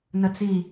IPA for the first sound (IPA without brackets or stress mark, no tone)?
n